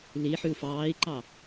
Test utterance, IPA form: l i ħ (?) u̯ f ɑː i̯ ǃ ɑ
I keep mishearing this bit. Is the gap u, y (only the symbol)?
y